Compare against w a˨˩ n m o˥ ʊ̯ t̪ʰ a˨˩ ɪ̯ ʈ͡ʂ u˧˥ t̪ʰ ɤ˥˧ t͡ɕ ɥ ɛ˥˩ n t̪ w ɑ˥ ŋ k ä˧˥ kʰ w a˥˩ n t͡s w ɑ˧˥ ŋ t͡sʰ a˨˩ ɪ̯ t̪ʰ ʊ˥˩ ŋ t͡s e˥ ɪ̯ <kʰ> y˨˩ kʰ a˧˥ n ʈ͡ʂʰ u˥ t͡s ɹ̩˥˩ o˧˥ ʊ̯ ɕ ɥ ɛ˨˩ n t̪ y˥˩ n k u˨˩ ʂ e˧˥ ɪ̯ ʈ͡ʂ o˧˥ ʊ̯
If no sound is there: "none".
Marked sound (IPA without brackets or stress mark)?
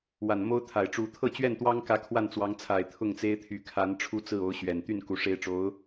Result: t̪ʰ